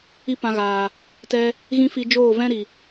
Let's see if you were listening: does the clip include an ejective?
no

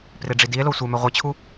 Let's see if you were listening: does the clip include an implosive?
no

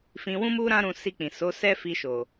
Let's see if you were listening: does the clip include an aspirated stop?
no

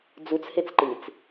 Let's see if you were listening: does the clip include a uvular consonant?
no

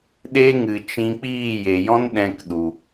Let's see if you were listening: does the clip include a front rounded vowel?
no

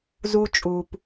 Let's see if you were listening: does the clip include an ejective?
yes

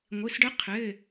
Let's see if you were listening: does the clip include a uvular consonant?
yes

